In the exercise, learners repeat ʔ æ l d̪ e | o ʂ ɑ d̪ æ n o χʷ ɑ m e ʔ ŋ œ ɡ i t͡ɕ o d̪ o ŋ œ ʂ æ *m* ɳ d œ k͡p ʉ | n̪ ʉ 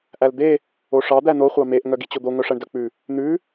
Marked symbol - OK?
no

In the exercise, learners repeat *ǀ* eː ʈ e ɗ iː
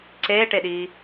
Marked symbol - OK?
yes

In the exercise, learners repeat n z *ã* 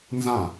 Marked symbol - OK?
yes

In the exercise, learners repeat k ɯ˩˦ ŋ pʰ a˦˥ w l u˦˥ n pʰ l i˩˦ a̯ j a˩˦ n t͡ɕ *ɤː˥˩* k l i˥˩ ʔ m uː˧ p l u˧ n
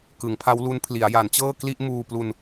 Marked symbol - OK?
yes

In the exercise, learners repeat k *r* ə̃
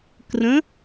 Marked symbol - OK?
yes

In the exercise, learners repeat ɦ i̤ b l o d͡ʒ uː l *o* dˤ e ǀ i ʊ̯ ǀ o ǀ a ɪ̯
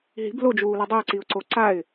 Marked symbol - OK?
no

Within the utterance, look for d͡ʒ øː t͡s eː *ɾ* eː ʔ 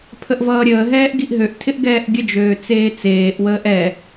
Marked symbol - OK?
no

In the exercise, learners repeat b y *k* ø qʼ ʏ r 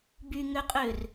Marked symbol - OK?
no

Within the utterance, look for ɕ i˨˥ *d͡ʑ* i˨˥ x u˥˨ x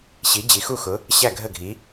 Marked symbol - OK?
yes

